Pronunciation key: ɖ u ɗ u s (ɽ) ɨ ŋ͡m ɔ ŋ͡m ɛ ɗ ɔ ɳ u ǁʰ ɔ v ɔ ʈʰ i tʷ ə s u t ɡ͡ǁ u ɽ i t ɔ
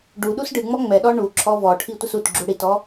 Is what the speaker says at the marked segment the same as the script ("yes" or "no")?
no